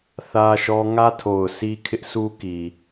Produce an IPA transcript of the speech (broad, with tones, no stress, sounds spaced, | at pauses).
θ ä˦ ʃ ɔ˦ ŋ ä˦ tʰ o˨ ʊ̯ sʰ i˦ kʰ ɪ˦ ʔ sʰ u˦ k i˨